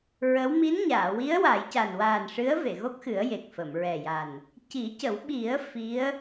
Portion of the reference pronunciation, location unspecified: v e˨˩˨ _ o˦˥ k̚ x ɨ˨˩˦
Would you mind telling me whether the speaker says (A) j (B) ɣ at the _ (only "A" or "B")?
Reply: B